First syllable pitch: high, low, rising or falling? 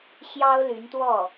high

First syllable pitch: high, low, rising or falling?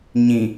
low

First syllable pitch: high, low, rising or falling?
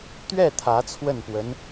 falling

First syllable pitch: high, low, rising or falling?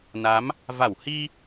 rising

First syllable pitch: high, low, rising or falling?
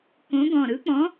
rising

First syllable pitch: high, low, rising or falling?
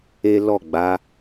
high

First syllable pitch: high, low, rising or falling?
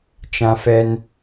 high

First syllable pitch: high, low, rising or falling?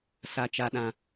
high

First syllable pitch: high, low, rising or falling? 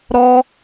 high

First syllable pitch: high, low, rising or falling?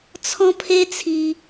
high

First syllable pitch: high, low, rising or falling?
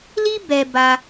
high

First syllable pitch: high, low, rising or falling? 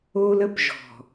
high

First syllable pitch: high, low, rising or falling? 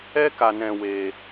high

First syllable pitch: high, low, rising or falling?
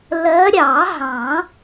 rising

